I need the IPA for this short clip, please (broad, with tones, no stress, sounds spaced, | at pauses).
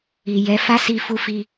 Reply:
i˨ j ɛ˨˦ f a˦ s i˧ f u˦ f i˦